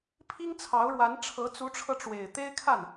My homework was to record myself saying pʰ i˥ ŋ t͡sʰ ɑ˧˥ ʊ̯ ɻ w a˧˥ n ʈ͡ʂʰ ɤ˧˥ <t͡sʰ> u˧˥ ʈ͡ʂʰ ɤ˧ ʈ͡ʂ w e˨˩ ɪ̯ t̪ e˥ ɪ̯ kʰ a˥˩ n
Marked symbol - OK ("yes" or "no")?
no